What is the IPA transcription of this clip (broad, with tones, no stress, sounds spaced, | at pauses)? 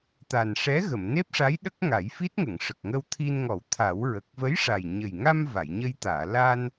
t̪ a˨˩ n ʂ ɛ˧˥ ɣ ə˨˩˨ m n e˦˥ p̚ ʂ a˧˥ j ɗ ə˦˥ k̚ ŋ a˨˩˦ j f i˦˥ t̚ ŋ ə˨˩˨ ŋ ʂ ə˨˩ k̚ ŋ ə˧ w t̪ʰ i˧ n ŋ ɔ˨˩˦ w t̪ʰ a˨˩˦ w ɹ ə˨˩ k̚ v ə˧˥ j ʂ a˨˩ j ɲ ə˨˩ j ŋ a˧ m v a˨˩˨ j ɲ ə˧ j t̪ aː˨˩˨ l a˧ n